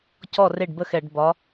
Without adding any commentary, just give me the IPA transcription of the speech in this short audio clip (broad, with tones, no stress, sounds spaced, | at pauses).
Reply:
c ɔ˥˩ r e˥˩ ɖ b ə˥˩ x ɛ˧˩˧ ɖ b ɒ˨˦